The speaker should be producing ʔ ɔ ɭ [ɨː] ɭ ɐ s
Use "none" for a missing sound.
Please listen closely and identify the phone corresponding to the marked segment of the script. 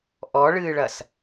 ɨː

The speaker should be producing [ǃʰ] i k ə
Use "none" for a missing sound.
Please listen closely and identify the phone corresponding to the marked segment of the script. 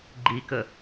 ɡ͡ǃ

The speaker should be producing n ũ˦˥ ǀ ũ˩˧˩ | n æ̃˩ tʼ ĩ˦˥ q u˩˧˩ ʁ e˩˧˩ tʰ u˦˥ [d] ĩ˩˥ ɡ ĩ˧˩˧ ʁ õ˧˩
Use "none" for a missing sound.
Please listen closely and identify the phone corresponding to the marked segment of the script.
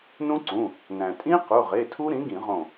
ɾ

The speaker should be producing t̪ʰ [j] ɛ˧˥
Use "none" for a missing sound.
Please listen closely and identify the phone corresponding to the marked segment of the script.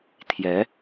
j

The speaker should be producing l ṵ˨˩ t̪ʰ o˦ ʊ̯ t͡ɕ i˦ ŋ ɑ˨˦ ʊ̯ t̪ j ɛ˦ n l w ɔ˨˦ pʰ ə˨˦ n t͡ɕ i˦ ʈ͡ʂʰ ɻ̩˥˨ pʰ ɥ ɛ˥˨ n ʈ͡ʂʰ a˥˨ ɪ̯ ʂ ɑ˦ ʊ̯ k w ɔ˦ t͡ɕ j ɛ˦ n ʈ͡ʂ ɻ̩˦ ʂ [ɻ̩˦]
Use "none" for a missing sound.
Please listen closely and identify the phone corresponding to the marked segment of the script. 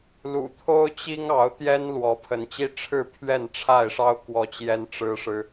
ɻ̩˦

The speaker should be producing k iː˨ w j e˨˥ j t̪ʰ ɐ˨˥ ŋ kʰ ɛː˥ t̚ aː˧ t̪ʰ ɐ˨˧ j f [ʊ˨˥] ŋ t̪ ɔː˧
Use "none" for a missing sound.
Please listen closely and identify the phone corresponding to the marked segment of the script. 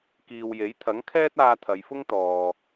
ʊ˥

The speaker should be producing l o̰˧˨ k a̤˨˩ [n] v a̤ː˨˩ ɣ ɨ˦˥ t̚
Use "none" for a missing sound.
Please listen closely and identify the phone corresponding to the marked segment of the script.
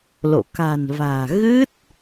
n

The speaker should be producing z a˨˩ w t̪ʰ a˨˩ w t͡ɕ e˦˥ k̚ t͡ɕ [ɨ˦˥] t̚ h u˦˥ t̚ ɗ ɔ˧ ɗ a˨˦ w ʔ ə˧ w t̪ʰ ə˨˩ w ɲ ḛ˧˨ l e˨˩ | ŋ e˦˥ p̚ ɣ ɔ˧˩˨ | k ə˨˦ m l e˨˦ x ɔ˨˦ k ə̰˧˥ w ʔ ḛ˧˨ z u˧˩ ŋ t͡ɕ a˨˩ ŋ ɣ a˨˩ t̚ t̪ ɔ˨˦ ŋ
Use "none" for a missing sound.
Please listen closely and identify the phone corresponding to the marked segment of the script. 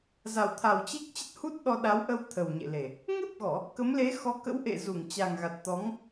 ə˦˥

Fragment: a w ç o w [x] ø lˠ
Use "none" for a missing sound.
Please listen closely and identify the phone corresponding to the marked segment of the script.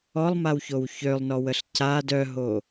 ç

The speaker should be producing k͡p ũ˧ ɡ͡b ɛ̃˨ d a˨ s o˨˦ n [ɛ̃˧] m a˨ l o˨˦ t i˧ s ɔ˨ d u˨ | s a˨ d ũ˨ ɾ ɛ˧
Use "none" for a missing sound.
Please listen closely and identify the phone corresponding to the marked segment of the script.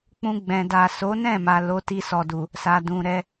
ɛ̃˦˨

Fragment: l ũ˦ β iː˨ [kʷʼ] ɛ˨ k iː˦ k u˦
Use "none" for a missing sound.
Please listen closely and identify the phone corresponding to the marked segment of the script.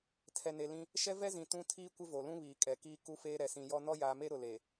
kʼ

